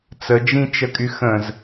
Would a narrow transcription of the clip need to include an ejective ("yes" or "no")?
yes